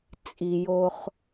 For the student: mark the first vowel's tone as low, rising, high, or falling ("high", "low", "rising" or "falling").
low